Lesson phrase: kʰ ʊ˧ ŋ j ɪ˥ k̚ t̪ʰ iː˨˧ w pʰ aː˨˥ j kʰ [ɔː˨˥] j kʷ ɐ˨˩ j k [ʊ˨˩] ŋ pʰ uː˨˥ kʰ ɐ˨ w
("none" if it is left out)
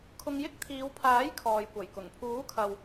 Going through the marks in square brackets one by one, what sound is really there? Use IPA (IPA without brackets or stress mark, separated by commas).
ɔː˨, ʊ˨˩